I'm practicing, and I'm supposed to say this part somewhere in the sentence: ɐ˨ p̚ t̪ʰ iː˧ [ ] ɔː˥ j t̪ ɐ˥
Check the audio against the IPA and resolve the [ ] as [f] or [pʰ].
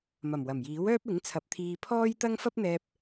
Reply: pʰ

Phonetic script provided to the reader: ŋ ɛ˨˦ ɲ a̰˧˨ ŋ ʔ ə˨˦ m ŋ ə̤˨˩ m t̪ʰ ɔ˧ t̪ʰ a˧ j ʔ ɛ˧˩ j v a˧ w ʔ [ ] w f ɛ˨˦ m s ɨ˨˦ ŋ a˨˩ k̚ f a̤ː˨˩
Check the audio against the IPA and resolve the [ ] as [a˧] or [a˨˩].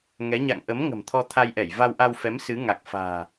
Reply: a˧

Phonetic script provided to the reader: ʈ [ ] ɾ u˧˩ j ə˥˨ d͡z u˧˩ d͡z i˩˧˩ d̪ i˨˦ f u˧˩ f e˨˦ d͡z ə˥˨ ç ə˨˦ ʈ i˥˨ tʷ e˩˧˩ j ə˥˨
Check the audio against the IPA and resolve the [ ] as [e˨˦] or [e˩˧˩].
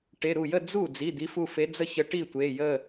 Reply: e˩˧˩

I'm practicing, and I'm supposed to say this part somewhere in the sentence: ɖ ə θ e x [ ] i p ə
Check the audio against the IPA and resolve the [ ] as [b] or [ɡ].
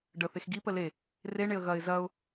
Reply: ɡ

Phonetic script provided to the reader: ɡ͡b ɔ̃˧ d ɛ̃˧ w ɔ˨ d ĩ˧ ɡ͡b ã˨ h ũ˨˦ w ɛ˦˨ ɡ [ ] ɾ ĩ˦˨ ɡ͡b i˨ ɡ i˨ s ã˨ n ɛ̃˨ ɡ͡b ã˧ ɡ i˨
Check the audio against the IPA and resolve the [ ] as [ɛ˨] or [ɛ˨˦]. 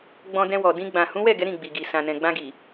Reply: ɛ˨˦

